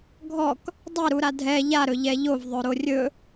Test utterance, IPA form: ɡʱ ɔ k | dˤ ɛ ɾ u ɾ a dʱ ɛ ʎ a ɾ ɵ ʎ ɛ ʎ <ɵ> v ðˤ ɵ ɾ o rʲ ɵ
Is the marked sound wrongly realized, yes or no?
yes